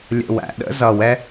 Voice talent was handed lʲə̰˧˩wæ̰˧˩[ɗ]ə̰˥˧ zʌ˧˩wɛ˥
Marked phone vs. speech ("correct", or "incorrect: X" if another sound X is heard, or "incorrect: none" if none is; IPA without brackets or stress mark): correct